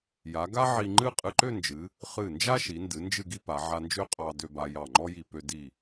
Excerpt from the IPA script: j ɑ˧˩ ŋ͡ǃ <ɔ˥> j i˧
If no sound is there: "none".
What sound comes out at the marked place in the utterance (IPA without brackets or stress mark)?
ɔ˥